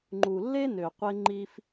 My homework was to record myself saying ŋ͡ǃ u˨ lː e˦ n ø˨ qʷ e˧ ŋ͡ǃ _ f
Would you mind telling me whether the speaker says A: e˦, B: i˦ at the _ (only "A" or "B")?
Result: B